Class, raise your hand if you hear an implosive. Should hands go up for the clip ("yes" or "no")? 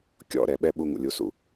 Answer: yes